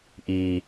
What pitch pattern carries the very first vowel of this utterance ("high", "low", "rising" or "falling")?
low